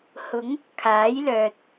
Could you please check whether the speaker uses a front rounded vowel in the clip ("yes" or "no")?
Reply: yes